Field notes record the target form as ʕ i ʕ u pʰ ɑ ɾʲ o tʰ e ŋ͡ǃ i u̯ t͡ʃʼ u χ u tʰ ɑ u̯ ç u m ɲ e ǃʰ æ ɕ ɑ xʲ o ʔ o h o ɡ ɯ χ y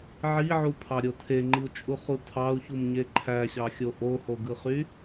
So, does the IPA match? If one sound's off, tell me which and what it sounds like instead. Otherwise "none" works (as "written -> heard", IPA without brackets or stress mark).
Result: none